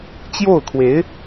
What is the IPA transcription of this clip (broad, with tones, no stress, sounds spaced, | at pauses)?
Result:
t͡ɕ j o˥˩ ʊ̯ kʰ w e˧˥ ɪ̯